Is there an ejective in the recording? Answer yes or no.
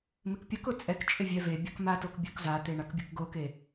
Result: yes